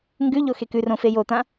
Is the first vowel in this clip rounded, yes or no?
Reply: yes